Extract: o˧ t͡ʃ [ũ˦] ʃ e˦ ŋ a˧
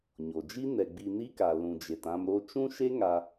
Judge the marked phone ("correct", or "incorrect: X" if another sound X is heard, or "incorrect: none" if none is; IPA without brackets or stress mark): correct